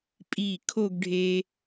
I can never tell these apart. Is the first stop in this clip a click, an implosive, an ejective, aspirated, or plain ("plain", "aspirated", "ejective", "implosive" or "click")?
ejective